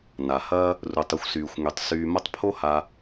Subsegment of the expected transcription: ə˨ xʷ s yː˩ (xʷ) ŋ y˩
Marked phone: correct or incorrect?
correct